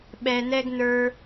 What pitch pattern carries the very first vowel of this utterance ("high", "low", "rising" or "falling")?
low